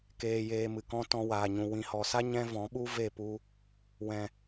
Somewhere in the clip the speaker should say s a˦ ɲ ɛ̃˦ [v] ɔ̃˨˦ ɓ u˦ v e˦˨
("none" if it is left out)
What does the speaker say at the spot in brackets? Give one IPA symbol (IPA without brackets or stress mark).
v